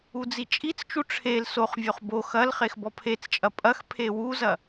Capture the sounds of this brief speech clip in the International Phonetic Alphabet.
u d͡z i t͡ʃʼ i t͡s t͡ʃ u ʈ͡ʂʰ e l s o χ vʲ o χ b o x ɐ l χ e x b ɔ pʰ e t͡s t͡ʃʼ ɐ pʼ ɐ x pʰ e w u z ɐ

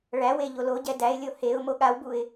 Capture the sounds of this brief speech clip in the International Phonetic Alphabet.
ɭ æ w e ʎ o l o ɟ ɛ d æ ɪ̯ lʲ o h e ʊ̯ m o ɠ a w b u ɪ̯

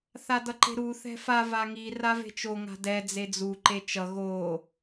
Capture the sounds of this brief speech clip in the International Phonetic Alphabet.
θ a d ʌ ǃ e̤ ɾ u θ ɛ̤ f a v a ŋ i r a v e̤ t͡ʃ o ŋ a̤ d ɛ d͡z e d͡z u ǃ e t͡ʃ ʌ ɣ o

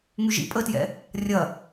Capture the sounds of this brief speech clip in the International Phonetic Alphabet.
ŋ y ʒ ḭ pʼ ə t j ɛ̰ | rʲ ɐ

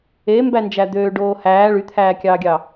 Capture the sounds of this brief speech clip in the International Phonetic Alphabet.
e m b æ n d͡ʒ æ d̪ øː ɖ oː h æː ɭ y t̪ʰ æː kʲ ɑː ɡʲ ɑ

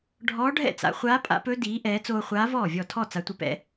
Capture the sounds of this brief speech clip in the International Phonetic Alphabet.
ɖʱ ɔː˧˥ ɖʱ ɛ̰˥˩ t͡s a̰˩˧ χʷ aː˧˥ pʼ a̰˧˥ p ɵ˧˥ d iː˩˧ ʔ ɛː˩˧ t͡s oː˧ χʷ aː˧˥ v ɔː˥˩ vʲ ɔ˥˩ tʰ ɔ˥˩ t͡s a˩˧ tʷ ə˩˧ p ɛ̰˩˧

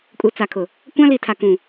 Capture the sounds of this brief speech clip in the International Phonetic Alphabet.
kʼ u˨ t͡s a˨ kʰ ʊ˨ | kʷ ã˦ l i˨ tʰ a˨ k ũ˨

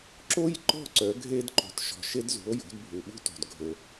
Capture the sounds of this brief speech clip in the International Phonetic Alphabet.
ǁ o˥ j ǃ ɔ̤˥˩ ǀ œ˩˥ ɡʱ e˥ d ǃ o̤˩˥ t ʃ ɔ̤˩ ʃ e˥ d z ṳ˩˥ o̯ j o̤˩˥ d bʱ u˩ ɓ ṳ˥ t o̤˩ d ɡʱ ɵ˩

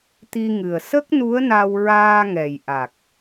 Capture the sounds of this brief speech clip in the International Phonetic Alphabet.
t̪ i˧ ŋ ɨ˨˩ ə̯ s ə˦˥ k̚ n u˧˥ ə̯ n a˧ w ɹ aː˧ ŋ ɛ˨˩ j ʔ a˨˩ k̚

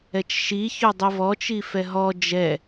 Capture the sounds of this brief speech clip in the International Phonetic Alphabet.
ɛ t͡ʃ ʃ i ç ɵ dˤ i v ɔ t͡ʃ i f ɛ ɦ ɔ d͡ʒ ɛ

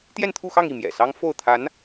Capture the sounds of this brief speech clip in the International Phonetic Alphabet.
t̪ j ɛ˥˧ n t̪ʰ u˥˧ x ɑ˥˧ ŋ i˥˩ m j ɛ̰˨˩ s ɑ˥ ŋ f o˥˩ ʊ̯ t̪ʰ a˧˥ n

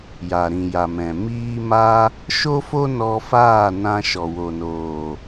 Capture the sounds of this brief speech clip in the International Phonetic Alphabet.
j a˨ ɾ ĩ˨ j a˨ m ɛ̃˨ m iː˦ m a˦ | ʃ o˦ f o˦ n ɔ˧ f aː˦˨ n ã˧ ʃ ɔ˨ w o˨ n oː˨

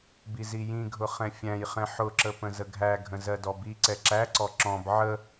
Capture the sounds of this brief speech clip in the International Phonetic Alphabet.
b i z i j ĩ ɡʱ ʊ χ ɛ̃ fʲ æ̃ j χ ɛ̃ ħ ʊ ǁ ə p ə̃ z ə ɡʱ æ ɡʱ ə̃ z ɜ d ɔ b i ǀ ɛ ǁ æ ǀ ɔ ǁ ɔ̃ b ʕ ə

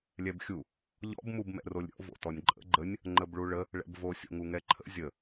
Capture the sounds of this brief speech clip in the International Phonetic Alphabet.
lʲ ɛ b xʲ u | ʎ ɔ̰ b m u b m ɛ̰ r o lʲ ɾʲ ɔ̰ v o̰ t ɔ nʲ ǃʼ ə̰ ɡ͡ǃ ə nʲ | ŋ͡ǃ ə b ɭ u ɭ ə | ɭ ɛ̰ b v o sʲ o̰ ŋ u ŋ ɛ ǃʰ ə̰ zʲ ə

